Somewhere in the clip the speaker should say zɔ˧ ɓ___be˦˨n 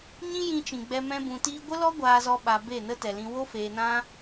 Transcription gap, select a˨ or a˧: a˧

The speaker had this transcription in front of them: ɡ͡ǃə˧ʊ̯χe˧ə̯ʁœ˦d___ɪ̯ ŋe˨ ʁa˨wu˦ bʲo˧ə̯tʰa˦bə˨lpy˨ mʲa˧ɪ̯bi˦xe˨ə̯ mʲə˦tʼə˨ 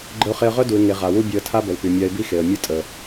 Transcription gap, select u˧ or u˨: u˨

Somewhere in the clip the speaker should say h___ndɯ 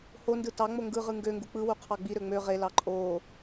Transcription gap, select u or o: o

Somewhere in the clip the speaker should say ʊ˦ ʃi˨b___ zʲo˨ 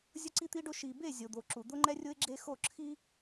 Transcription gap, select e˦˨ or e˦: e˦˨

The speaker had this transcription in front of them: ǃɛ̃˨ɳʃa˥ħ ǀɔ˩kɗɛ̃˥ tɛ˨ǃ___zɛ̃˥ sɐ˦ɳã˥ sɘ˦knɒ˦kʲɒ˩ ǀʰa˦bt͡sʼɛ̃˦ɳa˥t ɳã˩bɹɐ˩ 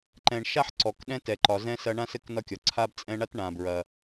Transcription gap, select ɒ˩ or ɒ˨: ɒ˨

